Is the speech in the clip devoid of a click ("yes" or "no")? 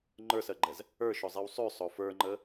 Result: no